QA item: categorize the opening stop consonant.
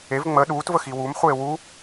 implosive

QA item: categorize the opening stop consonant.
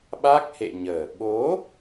implosive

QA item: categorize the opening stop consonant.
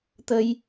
plain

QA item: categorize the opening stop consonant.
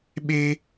implosive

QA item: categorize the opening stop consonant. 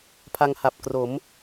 aspirated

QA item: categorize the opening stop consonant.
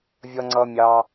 click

